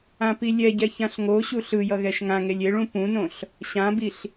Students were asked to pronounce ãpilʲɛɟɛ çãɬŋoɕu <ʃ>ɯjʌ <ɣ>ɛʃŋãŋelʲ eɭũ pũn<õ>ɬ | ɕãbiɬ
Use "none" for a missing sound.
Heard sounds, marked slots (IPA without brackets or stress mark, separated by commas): ɬ, ɣ, õ